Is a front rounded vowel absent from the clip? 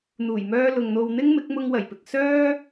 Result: no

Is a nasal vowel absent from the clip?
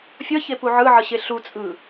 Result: yes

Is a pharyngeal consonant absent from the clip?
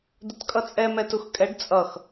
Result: yes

